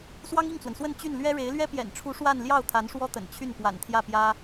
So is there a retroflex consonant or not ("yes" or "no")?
yes